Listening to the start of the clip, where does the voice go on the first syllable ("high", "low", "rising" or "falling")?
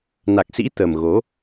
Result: low